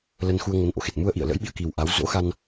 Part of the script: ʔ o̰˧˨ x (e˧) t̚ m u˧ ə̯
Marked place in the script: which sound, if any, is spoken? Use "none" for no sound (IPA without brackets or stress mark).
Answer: e˨˩